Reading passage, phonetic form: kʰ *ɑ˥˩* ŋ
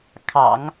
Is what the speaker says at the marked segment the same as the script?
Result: no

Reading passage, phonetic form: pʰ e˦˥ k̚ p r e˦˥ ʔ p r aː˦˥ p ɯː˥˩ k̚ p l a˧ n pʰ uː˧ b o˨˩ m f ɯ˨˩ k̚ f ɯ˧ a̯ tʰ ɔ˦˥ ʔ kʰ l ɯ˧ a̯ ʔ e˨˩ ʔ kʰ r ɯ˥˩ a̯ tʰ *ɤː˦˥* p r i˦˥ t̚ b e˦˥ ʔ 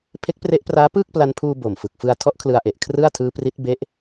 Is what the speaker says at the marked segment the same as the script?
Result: no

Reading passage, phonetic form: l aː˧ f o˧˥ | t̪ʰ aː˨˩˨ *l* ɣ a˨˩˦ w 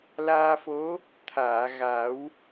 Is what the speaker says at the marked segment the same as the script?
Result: no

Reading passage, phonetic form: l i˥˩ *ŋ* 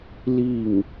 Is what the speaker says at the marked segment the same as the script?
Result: yes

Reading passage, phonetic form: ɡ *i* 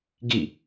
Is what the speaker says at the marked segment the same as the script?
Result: yes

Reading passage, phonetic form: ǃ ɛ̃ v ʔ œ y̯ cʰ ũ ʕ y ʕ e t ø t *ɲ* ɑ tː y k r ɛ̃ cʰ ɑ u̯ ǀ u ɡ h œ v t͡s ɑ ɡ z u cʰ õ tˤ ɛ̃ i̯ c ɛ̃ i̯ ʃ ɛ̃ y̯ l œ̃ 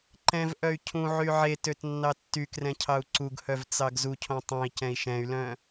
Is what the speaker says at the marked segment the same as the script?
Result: no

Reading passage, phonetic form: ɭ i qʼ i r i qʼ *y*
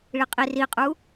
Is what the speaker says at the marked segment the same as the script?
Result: no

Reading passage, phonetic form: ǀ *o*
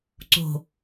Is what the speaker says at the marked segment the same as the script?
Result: no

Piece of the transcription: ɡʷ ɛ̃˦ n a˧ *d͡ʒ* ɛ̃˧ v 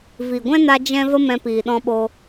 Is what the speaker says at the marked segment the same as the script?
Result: yes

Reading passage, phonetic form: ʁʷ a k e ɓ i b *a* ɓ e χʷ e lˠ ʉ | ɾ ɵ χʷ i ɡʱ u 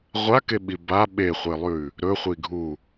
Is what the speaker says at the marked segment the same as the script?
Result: yes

